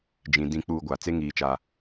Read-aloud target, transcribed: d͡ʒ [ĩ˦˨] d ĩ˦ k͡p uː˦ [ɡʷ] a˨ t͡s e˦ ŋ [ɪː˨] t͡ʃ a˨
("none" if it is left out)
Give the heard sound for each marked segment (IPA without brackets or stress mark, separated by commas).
ĩ˨, ɡʷ, iː˨